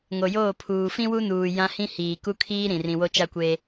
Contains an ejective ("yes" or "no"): no